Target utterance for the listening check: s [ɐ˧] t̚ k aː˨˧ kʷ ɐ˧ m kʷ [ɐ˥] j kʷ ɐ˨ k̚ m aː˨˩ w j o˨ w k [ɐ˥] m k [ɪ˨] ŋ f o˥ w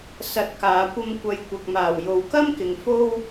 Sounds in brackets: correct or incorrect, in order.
correct, incorrect: ɐ˨˧, correct, correct

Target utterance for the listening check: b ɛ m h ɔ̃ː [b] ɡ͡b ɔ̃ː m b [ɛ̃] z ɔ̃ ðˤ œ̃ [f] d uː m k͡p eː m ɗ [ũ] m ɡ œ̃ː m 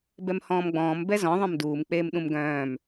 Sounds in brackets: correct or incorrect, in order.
incorrect: m, incorrect: ɛ, incorrect: m, correct

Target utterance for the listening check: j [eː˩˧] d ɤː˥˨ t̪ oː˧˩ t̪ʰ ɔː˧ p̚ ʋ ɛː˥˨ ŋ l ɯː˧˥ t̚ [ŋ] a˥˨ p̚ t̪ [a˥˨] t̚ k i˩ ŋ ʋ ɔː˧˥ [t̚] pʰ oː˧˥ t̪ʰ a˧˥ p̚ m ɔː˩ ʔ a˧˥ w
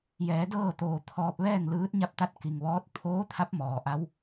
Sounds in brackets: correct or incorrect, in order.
incorrect: ɛː˩˧, incorrect: ɲ, correct, correct

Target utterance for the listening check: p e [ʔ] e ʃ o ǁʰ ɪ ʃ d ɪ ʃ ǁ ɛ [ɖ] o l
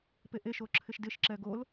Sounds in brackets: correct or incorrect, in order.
correct, incorrect: ɡ

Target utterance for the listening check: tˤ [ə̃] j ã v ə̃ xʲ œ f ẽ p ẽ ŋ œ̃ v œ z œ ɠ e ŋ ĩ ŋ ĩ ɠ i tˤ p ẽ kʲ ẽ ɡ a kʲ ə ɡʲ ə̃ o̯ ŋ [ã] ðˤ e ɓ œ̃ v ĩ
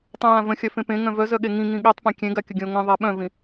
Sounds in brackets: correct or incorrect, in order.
incorrect: œ̃, incorrect: ə̃

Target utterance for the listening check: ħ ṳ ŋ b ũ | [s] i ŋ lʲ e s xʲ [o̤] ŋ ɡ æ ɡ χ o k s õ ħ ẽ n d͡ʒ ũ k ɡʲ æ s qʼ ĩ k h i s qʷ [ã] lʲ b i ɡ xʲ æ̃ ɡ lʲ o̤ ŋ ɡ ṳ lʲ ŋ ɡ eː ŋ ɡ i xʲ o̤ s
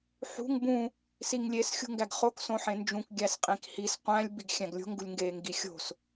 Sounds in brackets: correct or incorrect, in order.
correct, incorrect: ṳ, incorrect: æ̃

